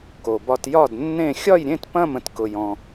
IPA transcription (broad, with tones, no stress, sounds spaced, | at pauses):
k o˧ b ɒ˧ t j ɒ˥˧ d nː ẽ˥˧ xʲ ɒ˥˧ j ɾʲ ẽ˥˧ t p ɐ̃˥˧ m ə̃˧ t k ʊ˧ j ɔ̃˧